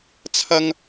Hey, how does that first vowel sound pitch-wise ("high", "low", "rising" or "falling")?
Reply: high